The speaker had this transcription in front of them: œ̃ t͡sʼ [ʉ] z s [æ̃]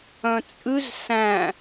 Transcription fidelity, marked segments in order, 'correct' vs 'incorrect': correct, correct

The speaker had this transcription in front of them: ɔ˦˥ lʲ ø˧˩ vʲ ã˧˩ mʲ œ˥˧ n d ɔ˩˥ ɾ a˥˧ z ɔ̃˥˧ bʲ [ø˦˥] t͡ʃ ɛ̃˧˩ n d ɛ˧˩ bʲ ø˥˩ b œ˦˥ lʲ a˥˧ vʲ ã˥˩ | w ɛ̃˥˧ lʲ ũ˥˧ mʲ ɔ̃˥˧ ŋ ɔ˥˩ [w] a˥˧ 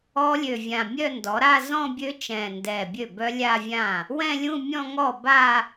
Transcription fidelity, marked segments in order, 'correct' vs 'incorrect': correct, incorrect

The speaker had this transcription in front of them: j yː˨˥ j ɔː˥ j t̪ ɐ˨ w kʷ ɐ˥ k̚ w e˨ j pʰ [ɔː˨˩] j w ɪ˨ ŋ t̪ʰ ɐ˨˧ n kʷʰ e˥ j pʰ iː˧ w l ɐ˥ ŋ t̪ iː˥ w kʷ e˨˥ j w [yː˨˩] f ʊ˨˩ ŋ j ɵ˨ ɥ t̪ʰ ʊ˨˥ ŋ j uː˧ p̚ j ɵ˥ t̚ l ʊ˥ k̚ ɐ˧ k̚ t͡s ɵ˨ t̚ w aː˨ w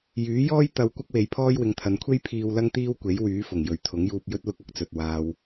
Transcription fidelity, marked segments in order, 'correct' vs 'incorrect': incorrect, incorrect

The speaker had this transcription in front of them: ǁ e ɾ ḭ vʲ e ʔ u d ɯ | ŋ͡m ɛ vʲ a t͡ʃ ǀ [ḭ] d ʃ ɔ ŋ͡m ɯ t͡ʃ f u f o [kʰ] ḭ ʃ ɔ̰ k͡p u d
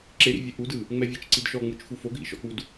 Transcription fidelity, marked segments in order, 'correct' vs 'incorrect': incorrect, incorrect

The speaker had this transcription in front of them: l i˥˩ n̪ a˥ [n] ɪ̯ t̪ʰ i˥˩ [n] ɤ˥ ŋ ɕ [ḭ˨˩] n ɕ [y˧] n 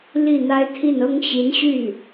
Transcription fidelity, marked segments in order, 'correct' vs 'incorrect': incorrect, correct, incorrect, incorrect

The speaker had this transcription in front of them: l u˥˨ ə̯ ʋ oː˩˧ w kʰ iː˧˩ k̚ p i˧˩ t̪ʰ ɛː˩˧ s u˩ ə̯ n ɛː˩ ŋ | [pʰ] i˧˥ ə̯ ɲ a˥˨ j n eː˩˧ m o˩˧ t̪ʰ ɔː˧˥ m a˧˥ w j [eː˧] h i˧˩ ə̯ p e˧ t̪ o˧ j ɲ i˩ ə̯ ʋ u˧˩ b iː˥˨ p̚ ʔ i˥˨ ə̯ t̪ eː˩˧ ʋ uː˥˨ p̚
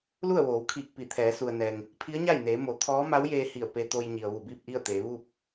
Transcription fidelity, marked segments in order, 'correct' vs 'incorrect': correct, correct

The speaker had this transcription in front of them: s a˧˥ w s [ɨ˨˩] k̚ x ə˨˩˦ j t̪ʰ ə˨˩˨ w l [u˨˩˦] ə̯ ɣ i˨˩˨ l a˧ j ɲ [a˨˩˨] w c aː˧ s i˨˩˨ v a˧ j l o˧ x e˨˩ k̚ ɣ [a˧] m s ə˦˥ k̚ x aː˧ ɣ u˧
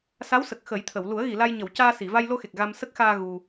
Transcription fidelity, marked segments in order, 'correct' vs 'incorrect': incorrect, correct, incorrect, correct

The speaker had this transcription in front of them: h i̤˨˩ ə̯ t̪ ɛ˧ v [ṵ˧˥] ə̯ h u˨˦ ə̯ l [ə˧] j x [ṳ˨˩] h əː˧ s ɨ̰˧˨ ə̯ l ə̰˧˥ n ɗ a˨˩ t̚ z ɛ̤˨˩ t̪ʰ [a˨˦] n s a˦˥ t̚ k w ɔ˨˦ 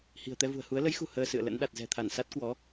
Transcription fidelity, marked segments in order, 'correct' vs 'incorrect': incorrect, incorrect, correct, incorrect

